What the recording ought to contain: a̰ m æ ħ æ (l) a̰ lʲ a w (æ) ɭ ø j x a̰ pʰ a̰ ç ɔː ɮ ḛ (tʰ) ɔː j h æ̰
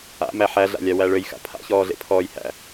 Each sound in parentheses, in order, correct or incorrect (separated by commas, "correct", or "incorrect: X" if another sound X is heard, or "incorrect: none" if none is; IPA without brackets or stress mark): incorrect: ɮ, correct, incorrect: pʰ